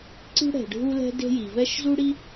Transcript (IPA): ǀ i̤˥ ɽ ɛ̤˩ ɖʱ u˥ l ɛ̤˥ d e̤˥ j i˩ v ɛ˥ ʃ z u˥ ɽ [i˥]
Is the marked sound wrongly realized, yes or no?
no